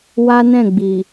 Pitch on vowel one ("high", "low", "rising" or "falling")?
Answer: high